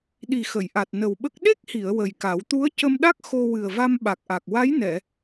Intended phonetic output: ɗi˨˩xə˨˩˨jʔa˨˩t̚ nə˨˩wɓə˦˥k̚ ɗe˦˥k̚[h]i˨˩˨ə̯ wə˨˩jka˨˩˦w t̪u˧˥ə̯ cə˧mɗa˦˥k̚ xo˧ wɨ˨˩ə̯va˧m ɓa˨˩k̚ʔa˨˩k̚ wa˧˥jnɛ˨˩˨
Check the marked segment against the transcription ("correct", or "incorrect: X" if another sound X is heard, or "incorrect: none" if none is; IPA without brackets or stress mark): correct